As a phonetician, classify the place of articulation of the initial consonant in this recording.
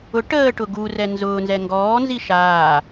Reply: retroflex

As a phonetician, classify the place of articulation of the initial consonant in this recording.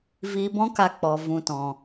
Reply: labial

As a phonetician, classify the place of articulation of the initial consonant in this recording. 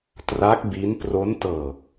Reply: alveolar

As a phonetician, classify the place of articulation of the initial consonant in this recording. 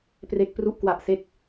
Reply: labial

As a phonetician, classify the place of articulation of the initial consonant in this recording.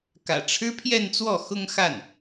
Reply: velar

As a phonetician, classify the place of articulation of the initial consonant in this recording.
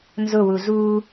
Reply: alveolar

